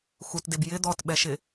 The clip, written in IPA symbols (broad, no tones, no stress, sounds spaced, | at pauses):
x u t d e b j ɪ d̪ ɔ t ɓ ɛ ʃ ɪ